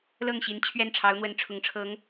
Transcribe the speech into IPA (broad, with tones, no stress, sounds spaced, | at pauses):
l ɤ˥˩ ŋ ɕ i˧˥ n t͡ɕʰ ɥ ɛ˥˩ n ʈ͡ʂʰ ɑ˧˥ ʊ̯ n̪ w ə˧˥ n ʈ͡ʂʰ ʊ˧˥ ŋ ʈ͡ʂʰ ɤ˧˥ ŋ